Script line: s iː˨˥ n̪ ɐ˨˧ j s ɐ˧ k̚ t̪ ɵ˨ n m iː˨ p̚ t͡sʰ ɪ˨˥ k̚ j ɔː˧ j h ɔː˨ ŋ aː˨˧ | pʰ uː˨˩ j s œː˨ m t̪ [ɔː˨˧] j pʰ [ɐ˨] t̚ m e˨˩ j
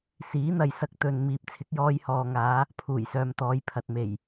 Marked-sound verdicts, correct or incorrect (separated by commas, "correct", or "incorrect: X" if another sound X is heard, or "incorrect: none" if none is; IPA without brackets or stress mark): correct, correct